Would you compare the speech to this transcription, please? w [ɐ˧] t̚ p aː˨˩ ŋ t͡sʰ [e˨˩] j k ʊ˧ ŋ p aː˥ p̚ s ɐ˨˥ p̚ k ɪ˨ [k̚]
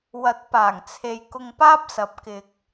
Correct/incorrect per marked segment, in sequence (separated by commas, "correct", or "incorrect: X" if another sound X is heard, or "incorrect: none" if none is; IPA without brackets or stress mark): incorrect: ɐ˨˥, incorrect: e˨, correct